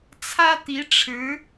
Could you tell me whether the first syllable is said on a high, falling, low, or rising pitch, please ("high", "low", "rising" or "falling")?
high